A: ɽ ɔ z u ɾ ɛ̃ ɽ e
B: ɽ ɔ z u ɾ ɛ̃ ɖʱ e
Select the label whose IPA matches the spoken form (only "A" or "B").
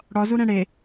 A